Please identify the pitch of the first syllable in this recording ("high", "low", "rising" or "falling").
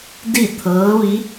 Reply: falling